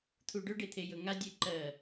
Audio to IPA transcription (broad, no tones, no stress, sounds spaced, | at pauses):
t̪ʰ u ɖ ɵ ɖ e t̪ʰ e j ɵ ŋ a dʲ e ǃ ɜ